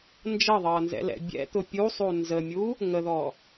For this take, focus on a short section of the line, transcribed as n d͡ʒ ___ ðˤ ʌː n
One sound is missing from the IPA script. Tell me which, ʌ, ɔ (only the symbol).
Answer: ʌ